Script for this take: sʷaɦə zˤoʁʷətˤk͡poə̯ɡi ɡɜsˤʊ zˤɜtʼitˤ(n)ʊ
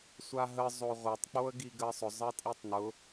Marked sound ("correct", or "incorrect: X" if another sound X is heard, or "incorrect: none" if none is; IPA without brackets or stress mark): correct